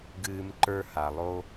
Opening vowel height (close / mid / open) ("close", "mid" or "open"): close